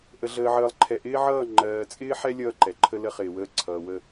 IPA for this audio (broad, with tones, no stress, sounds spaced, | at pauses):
ʔ ə˨ ɮ əː˨ ʕ əː˨ lˠ ǃʰ ɛ˨ ʔ ɪː˦ ʕ ʌː˦˨ ŋ͡ǃ ɜː˨ t͡sʼ ɪː˦ ħ ɛ˦ lʲ ʌː˦ ǃ ɛ˨ ǃʰ ə˦ l ə˦ χ ɪː˨ w əː˦ ǀʰ ʌː˨ w ə˦˨